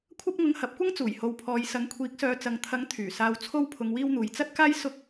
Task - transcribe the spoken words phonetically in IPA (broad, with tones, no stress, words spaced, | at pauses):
kʷʰɐ˥p̚ŋʊ˧ŋhɐ˨˥p̚kʷɐ˥ŋ t͡suː˨˩jho˨w pʰɔː˨jsɐ˨˥ŋkʷʰiː˨˥k̚sœː˨˧ t͡sɐ˨ŋ t̪ʰɐ˨˥ŋ t̪ʰyː˨˩saː˧w t͡sʰo˥w pʰʊ˧ŋwiː˥wn̪uː˨j t͡sɐ˥t̚kaː˥j sʊ˥k̚